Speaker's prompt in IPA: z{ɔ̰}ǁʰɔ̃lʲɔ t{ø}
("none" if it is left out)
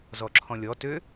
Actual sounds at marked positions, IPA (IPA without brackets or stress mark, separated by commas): ɔ, ø